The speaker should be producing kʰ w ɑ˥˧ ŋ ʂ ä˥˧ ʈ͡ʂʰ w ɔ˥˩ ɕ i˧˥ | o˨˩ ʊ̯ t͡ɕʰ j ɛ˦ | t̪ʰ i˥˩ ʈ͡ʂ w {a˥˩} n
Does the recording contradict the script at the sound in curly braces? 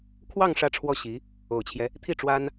yes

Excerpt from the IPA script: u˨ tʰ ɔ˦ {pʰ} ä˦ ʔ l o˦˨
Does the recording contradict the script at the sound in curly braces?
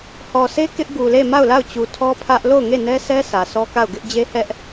no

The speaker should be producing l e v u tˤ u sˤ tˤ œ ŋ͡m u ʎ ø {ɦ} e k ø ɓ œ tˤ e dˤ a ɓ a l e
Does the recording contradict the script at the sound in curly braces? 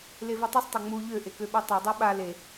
yes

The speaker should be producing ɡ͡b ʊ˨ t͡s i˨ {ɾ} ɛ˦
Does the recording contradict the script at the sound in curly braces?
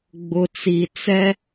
yes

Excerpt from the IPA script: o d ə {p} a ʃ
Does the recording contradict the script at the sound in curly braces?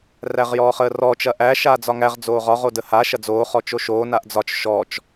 yes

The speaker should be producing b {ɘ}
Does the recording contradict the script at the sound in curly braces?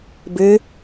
no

